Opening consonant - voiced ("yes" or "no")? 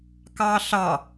no